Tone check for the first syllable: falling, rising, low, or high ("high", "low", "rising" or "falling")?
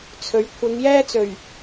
rising